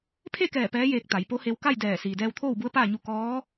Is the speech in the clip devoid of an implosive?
yes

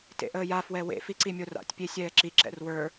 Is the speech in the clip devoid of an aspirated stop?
yes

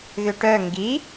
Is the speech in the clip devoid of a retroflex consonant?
no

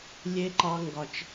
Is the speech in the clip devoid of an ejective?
yes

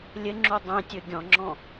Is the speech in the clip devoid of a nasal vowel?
no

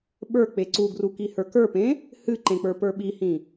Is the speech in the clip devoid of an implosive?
no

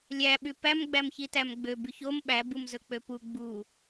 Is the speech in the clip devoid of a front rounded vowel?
no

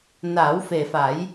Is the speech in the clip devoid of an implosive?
yes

